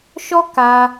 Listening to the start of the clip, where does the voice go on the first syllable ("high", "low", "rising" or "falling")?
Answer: high